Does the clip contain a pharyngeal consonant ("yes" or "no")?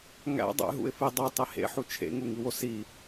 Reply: yes